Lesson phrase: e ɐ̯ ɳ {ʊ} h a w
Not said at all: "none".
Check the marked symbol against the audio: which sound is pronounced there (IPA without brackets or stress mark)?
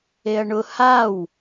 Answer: ʊ